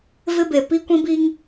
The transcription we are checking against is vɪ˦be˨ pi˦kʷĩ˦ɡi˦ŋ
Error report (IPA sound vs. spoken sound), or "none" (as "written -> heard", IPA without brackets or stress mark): ɡ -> b